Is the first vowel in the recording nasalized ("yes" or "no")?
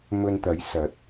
no